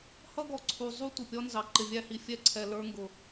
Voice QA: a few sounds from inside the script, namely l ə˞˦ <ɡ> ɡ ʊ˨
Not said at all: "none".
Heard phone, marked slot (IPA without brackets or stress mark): ŋ